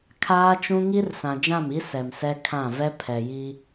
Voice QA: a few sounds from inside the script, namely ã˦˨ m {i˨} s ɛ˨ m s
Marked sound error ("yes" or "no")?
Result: yes